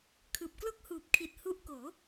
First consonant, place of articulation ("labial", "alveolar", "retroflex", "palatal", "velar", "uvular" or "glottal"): velar